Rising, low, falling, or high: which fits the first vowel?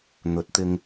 rising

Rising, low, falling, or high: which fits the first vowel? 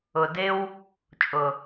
low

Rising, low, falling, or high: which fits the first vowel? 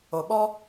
low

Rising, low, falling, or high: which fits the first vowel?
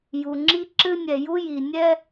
low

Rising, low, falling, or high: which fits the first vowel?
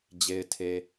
low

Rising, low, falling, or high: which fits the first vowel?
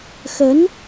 rising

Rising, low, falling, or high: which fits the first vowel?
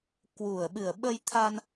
low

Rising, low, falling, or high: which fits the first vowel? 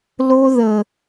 high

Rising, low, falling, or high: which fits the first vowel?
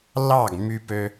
falling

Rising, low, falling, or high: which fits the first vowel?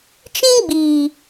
high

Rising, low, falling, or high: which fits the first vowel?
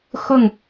falling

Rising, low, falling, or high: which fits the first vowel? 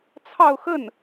falling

